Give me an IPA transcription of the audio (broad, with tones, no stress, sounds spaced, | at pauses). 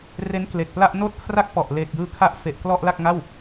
r e˦˥ n k l e˨˩ k̚ p l a˥˩ ʔ n oː˥˩ t̚ kʰ r a˥˩ k̚ p ɔ˨˩ ʔ l eː˨˩ k̚ j ɯː˧ kʰ a˦˥ ʔ f e˨˩ ʔ k l ɔ˥˩ ʔ l a˥˩ k̚ ŋ a˥˩ w